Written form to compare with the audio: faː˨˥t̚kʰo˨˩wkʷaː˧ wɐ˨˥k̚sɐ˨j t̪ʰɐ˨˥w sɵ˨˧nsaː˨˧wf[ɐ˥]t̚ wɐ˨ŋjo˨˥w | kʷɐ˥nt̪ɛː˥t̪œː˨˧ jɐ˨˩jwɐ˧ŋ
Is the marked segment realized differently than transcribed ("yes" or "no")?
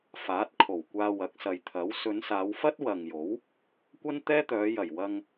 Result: no